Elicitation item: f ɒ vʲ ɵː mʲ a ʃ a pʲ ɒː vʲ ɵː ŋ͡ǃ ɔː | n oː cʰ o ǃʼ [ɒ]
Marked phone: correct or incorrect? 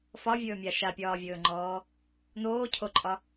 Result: correct